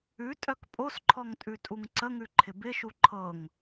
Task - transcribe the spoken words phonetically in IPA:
ʉtʼœk pʼosǃʰɔŋ tʼʉtʼuŋǀəŋʉ ǃʰɪbɪʃu ǃʰɤŋ

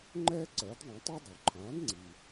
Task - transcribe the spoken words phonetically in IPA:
ŋ͡ǃɛː˥ǀɜː˩˥dðˤõ˩˥tˤi˥ dˤo˩ ǃʰãː˩˥dŋ͡ǀi˩

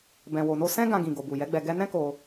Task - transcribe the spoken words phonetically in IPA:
bɛ̃˨wo˨no˧ sɛ̃˦ ɡã˧ɡĩ˨ ɡo˨bu˨jɛ˨˦ɡ͡bɛ˧ ɡɛ˦ nɛ̃˦ko˧

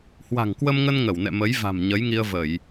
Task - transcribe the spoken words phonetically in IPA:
hwa̤˨˩ŋkwə˧mŋə˧n ŋə˧˩wnɛ̰˧˨mə˨˦j va̤˨˩mɲə˨˦jŋi˧ə̯və˧˩˨j

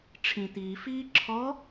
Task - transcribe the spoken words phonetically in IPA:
ʈ͡ʂʰĩt̪iːfiː ǁʰɔ

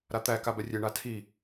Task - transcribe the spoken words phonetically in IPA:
ɾat̪æ kabɛrʲe ɳatʰi

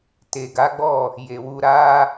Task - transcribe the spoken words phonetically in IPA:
te˨ɡa˨˦ɡ͡bɔ˦˨ | je˨wu˧ ɾa˧

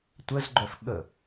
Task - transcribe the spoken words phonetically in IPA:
tʷəzɡ͡ǃœf ɠə

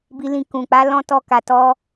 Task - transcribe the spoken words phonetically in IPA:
bi˧lĩ˧ kũ˨k͡pa˨˦lɔ̃˦ tɔ˦ka˧ tɔ˦

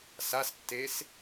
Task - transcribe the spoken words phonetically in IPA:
sastːes

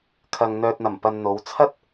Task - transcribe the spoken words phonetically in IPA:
kʰɐ˨ŋn̪œː˨t̚n̪ɐ˨˩mpɐ˨n n̪o˨˧wt͡sʰɐ˥t̚

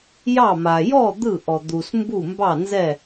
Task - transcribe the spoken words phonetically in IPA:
jɑ˥˨ma˨ jɔ˥˨ d̪ɯ˥˨ʔɔ˨ d̪u˨smbu˥˨mbɑ˥˨nzɛ˥˨

